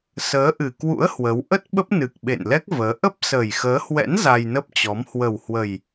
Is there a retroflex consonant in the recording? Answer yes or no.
no